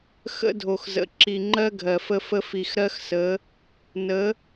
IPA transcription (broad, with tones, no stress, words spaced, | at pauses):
xə̰˦dʱo˨xzə̰˨ ǁi˨ŋ͡ǃɜ˦ ɡʱɜ˨fə˦ fə˦ fi˨xɾɜ˦xsə˨˦ | nə˨˦